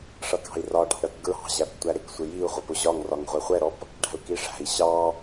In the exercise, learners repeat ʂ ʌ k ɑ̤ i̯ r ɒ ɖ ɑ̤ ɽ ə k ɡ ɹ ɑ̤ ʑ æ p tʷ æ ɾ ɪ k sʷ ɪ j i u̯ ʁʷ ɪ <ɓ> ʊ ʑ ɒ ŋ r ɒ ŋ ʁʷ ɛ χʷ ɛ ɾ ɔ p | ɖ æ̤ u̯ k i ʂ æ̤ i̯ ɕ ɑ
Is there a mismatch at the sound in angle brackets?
yes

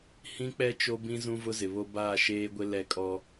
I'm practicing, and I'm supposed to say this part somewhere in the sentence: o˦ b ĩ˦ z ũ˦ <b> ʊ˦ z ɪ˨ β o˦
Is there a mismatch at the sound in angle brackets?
yes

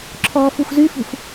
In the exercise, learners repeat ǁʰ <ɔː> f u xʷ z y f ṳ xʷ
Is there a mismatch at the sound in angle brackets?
no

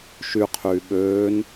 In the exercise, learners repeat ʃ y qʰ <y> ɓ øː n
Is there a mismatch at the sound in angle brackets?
yes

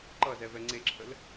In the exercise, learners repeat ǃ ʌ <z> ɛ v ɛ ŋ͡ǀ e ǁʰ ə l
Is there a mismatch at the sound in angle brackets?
no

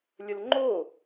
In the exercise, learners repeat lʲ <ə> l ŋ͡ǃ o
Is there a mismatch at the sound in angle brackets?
no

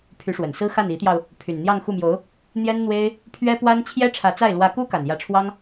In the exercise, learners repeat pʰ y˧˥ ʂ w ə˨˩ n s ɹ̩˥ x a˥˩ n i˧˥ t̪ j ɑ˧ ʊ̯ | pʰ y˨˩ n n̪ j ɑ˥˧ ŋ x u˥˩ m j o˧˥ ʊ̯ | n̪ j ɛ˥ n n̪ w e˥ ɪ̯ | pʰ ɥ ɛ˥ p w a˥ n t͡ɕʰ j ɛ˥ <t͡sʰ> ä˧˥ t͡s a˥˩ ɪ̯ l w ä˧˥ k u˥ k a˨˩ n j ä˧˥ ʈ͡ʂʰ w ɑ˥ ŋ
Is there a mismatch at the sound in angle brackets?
yes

